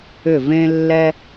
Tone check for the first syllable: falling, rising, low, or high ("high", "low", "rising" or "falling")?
falling